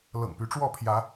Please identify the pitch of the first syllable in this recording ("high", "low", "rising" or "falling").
low